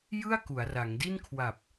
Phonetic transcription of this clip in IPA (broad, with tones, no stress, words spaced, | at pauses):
jɯ˥˩a̯ku˩˦a̯ ra˩˦ŋdi˥˩n kʰwa˨˩p̚